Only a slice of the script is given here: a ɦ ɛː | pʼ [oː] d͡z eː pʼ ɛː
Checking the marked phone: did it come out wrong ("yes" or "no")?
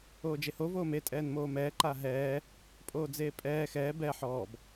no